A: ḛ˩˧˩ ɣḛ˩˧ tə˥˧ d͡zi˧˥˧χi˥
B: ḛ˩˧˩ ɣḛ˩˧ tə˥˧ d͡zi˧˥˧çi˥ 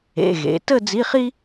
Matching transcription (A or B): A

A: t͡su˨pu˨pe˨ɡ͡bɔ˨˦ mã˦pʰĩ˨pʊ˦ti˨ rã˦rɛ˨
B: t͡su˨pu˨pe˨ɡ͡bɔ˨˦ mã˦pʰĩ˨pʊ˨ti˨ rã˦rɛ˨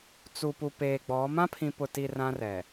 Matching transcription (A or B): B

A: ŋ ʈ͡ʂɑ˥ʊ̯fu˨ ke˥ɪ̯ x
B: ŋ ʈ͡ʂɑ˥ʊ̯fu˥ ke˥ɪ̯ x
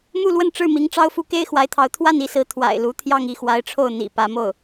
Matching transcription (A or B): B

